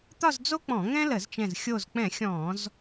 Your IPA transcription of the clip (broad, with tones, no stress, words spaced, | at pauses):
t̪ɒ˥˧zd͡zo˥k͡pɔ̃˧˩˧ ŋɛ̃˥lə˧˩˧zt͡ʃɛ̃˧˩z xʲo˧˩zk͡pɛ̃˧˩˧ xʲɔ̃˧˩˧z